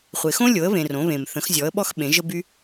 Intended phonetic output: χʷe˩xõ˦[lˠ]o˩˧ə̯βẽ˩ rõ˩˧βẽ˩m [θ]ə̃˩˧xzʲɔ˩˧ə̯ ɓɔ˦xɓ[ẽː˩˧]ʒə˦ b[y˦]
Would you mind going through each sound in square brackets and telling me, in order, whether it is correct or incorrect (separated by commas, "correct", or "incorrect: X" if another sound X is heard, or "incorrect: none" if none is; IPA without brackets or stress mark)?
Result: incorrect: lʲ, correct, incorrect: ẽ˩˧, correct